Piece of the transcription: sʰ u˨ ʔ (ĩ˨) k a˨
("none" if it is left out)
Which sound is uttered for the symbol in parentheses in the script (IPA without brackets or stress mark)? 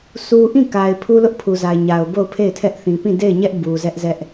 ĩ˦˨